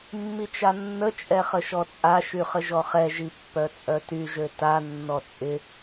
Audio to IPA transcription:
mː i t͡ʃ a nː ə t͡ʃʼ ɛ χ ə ʃ ɔ t͡sʼ a ʃ y χ ə ʒ ɔ χ ɛ ʒ i pː œ t͡sʼ œ t y ʒ ø t a nː ɔ t͡sʼ ɪ

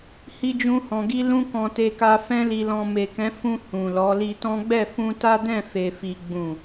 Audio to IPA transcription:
h i˦ d͡ʒ ũ˦ h ɔ̃˧ ɡ i˦ l ũ˦ k ɔ̃˧ t e˧ k a˧ f ɛ̃˦ l i˧ l ɔ̃˧ m e˨ k ɛ̃˨˦ f ũ˧ h ũ˨ l ɔ˨˦ l i˧ t ɔ̃˦ ɡ͡b ɛ˦˨ f ũ˧ t a˦ d ɛ̃˦˨ f e˨ f i˨ ɡ͡b ũ˨

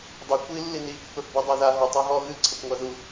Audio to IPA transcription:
dˤ i kʷ i lː i n i pː ə˞ f b ɤ dˤ e ð a ɦ ɤ tˤ a ɦ ɔ ɣ ɨ ǀʰ ɐ kʷ ŋʷ a ð u

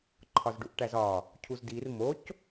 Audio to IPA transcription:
ǃʰ ɒ z ɖ u ʔ ʈ æ z ɒ | cʰ u z d i r m o c

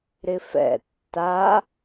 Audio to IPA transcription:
ɾ ɪ f ɛ̰ tː a

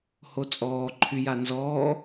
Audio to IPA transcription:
h o t͡sʼ ɔː ǃʰ y j a n z ɔː

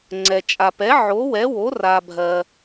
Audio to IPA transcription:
ŋ͡ǀ ɛ˨ t͡ʃʼ a˨ p ɛ˨˥ ʕ o˨˥ w ɛ˨˥ w o˨˥ r a˨ bʱ ɜ˨

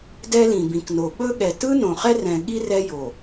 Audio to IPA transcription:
d ɛ˦ l ĩ˨ b ĩ˨ k n o˨ ɓ ɵ˦ ɠ ɛ˨ t ɯ˦ n õ˨ χ ɛ˦ r ɛ̃˨ ɠ i˦ r ɛ˦ j o˨

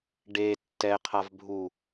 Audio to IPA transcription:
ɖ e tː ɛ qʰ a v bʱ u

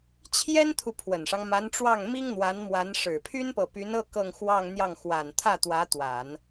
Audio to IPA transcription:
t͡ɕʰ j ɛ˥ n t̪ʰ u˨ pʰ w ə˨˩ n ʂ ɑ˦ ŋ m a˧˥ n ʈ͡ʂ w ɑ˥˩ ŋ m i˥ ŋ n̪ w a˧˥ n m w a˧˥ n ʂ ɻ̩˨˩ pʰ y˥ n p ɤ˨ p y˧˥ n ɤ˥˧ k ɤ˥˧ ŋ x w ɑ˥˧ ŋ n̪ j ɑ˥˩ ŋ x w a˨˩ n t̪ʰ ä˥˩ t̪ w ä˧˥ t̪ w a˨˩˦ n

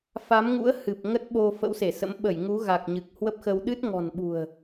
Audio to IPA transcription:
f a˨˦ m ŋ ṵ˧˥ ə̯ h ɨ˨˩ p̚ ŋ ə˦˥ t̚ ɓ o˧ f ə̰˧˥ w s e˧˩ s ə̰˧˥ m ɓ ə˧˩ j ŋ u˨˦ ɣ a˨˩ k̚ ɲ ɨ˨˩ k̚ h w ə˦˥ p̚ x ə˧ w ɗ ɨ˦˥ t̚ ŋ ɔ̤˨˩ n ɓ ṳ˨˩ ə̯

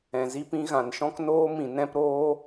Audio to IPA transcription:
ɛ̃˨ z i˦ p ĩ˦ ɣ ã˨ n ʃ ɔ̃˦ k n oː˦ m ĩ˨ n ɛ̃˦ p ɾ oː˦

